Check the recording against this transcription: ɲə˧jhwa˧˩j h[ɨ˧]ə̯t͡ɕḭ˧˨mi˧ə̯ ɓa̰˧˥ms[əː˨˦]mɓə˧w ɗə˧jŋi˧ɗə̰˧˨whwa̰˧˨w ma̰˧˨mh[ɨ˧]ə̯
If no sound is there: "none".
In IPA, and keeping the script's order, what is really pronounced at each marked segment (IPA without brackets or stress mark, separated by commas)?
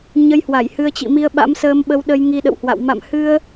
ɨ˧, əː˧, ɨ˧